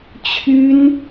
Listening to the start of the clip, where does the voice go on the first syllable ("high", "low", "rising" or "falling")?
high